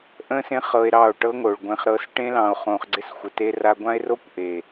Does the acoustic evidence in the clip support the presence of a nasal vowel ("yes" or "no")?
yes